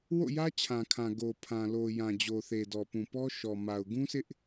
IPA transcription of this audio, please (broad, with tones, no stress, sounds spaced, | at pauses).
w o̰˦˨ j ä˦ t͡ɕʰ ã˨ kʰ ã˨ ɡ o˨ pʰ ã˨ l o˨ j ã˨ d͡ʑ o˨ θ e˨ d ɔ˨ p ũ˨ p ɔ˦ ʃ ɔ˨ m a˨ ʊ̯ ɡ ũ˦ sʰ ɪ˦ ʔ